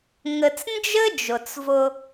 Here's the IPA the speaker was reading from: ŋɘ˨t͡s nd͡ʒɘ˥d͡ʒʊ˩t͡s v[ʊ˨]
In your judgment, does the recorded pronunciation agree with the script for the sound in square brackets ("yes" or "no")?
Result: yes